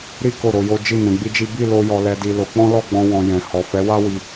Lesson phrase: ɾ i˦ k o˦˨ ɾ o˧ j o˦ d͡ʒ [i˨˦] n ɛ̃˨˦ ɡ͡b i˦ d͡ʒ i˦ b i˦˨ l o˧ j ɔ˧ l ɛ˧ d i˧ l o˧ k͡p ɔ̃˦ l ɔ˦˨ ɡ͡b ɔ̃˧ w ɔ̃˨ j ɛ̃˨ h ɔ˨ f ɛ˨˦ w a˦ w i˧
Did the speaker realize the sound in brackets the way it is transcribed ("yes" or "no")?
no